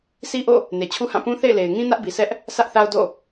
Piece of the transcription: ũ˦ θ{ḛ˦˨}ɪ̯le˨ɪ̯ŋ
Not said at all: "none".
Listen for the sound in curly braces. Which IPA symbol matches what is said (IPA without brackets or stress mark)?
ḛ˦˨